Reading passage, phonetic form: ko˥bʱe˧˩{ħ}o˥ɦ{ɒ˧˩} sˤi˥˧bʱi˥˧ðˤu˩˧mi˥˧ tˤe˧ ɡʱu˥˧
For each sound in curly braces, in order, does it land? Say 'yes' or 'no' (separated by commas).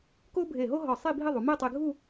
no, yes